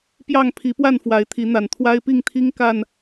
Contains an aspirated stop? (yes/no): yes